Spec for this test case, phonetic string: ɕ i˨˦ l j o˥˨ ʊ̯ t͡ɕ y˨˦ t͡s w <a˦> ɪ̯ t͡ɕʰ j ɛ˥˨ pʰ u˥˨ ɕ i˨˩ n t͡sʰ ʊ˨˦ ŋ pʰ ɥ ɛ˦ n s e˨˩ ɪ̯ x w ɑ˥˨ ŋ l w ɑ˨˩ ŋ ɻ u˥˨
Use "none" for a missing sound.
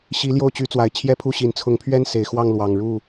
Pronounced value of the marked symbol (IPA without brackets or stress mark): a˨˩